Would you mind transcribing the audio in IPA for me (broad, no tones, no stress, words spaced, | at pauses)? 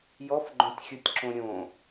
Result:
jɔfɡ͡ǃõtʲxʲutʲǁõ ɾʲõ